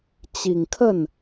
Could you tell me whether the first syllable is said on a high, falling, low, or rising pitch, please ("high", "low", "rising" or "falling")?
low